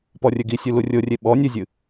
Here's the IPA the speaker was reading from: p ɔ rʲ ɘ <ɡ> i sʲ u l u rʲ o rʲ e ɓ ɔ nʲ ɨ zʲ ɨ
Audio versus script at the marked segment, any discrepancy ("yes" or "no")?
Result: no